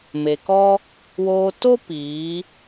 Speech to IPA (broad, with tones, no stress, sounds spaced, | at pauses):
m e˨ k ɔ˦ | w oː˧ t o˦ p iː˨˦